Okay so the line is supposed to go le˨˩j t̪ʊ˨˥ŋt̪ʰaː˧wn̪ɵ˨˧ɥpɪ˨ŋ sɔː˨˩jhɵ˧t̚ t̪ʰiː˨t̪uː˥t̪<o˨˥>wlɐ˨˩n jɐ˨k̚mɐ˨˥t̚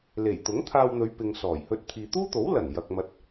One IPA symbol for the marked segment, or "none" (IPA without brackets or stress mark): o˨˥